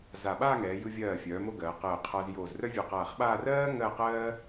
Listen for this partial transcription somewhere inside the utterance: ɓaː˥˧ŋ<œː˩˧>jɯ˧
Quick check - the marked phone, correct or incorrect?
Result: incorrect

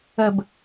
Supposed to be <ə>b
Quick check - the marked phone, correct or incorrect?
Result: correct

